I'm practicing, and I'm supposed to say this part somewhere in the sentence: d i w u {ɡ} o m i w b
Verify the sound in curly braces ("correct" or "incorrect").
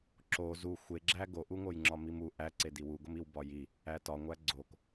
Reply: correct